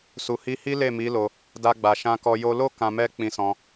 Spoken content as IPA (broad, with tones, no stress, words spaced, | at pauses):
su˨hi˧hi˦ le˦˨mi˨˦ lo˧ | da˧ɡ͡ba˨ ʃã˧kɔ˧ jo˧lo˦ kã˧mɛ˦ k͡pĩ˧sɔ̃˧